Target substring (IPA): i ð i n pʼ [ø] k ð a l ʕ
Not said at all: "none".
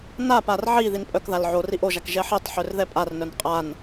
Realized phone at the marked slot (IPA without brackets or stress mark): œ